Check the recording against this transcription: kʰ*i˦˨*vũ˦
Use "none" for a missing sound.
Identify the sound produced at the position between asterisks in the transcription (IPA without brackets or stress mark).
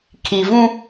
i˨